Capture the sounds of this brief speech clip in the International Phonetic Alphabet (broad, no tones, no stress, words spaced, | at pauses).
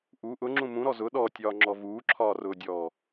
ʔu ʔʊŋ͡ǁũ mũɾɔ zʊ ɗɔtʲɒːŋ͡ǁɔ vuːǁʰɒːrʊːdʲɔː